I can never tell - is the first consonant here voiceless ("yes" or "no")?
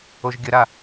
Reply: no